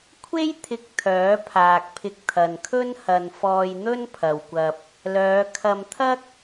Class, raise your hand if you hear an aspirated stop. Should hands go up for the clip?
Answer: yes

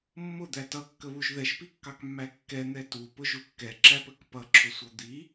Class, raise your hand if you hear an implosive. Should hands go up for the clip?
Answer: no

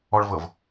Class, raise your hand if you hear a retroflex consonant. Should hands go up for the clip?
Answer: yes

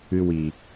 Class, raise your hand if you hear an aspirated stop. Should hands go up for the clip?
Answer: no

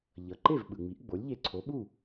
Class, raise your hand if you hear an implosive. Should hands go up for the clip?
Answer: yes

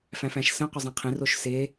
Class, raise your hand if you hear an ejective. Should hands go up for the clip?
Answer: no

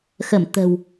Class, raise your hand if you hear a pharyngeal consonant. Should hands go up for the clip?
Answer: no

